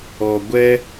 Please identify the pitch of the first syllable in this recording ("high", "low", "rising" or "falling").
low